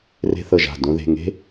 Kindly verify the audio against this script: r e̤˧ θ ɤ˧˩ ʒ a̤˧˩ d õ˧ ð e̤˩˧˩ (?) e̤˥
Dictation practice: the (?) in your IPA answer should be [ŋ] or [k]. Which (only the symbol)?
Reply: ŋ